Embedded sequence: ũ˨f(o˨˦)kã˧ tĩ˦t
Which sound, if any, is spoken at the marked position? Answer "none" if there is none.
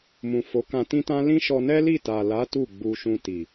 o˨˦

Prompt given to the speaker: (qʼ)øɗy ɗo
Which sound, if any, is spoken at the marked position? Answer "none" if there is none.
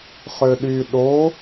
χ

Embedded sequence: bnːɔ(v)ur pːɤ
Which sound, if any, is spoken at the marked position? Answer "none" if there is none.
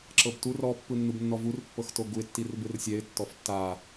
v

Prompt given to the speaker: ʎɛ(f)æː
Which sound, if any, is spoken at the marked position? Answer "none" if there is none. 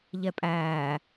pʼ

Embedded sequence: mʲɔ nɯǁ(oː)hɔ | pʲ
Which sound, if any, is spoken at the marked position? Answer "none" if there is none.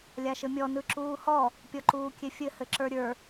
uː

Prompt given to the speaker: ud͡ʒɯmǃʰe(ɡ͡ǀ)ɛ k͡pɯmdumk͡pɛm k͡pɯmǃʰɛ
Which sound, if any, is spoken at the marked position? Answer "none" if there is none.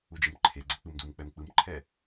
ɡ͡ǀ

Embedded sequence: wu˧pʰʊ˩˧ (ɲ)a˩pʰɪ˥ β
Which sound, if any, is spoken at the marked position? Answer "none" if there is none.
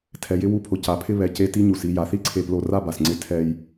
c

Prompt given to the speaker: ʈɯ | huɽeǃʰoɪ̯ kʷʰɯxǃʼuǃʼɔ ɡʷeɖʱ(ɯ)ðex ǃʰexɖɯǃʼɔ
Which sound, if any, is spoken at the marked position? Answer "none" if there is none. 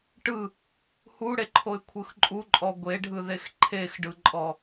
ɯ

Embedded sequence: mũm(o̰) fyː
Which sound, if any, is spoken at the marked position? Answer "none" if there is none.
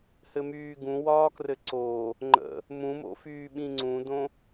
o̰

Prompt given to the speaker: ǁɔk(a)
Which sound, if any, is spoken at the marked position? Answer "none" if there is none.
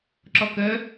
ə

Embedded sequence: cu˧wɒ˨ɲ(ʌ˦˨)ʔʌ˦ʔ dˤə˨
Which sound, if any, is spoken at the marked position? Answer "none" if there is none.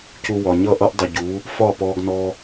ʌ˦˨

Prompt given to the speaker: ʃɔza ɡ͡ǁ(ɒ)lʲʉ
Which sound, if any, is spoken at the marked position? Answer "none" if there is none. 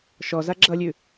ʌ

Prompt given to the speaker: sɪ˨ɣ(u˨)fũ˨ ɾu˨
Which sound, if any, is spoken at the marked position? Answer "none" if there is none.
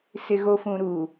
o˨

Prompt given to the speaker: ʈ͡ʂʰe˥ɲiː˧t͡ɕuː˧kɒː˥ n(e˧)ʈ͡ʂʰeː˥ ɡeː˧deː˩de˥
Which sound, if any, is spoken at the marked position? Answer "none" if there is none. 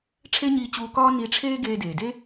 i˧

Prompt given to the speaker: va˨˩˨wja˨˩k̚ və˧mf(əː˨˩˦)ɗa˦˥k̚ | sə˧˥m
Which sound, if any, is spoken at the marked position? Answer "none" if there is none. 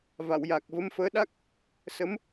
əː˧˥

